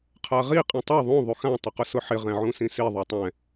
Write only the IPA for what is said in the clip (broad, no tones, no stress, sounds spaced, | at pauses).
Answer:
qʰ a ʁ i qʼ ĩ tˤ a ðˤ ũ ðˤ u x ã tˤ ʊ q ʊ s ʊ ħ ɪ ʁ ɛ̃ ʕ ũ s ĩ s i ðˤ u tˤ ɛ̃